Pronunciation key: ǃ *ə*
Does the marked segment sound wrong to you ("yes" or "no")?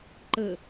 no